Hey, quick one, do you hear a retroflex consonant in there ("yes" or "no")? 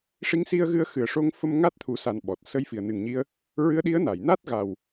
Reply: yes